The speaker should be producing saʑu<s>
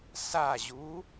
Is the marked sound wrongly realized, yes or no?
yes